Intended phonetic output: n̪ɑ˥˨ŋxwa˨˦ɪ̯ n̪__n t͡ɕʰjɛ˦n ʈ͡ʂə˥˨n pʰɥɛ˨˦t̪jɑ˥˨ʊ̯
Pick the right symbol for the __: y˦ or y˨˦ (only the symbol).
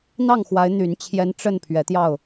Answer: y˨˦